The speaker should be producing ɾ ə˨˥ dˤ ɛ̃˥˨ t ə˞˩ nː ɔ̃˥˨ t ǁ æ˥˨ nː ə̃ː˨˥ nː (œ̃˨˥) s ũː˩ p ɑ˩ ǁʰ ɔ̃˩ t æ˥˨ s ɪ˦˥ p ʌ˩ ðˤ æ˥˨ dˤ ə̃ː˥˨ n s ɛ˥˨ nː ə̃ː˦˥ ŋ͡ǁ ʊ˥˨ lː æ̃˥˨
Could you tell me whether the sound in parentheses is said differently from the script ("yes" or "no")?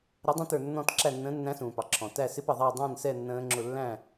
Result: yes